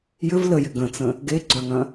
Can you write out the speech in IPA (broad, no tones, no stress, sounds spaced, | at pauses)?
j ʏ v l ə j ɪ ɡ ə̃ t͡s ə̃ | ɡ e ɡ͡ǀ œ ŋ ɐ̃